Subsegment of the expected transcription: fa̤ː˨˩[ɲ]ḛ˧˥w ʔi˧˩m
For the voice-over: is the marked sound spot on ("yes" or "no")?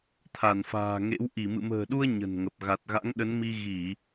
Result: no